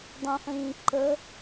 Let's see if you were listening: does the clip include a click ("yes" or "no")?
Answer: yes